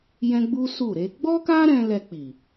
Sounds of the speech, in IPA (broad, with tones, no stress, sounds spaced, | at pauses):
j ɛ̃˦ ɡ͡b u˦ s u˦˨ ɾ e˨˦ ɡ͡b ɔ˦ k a˦ ɾ ɛ̃˧ l ɛ˧ k͡p i˨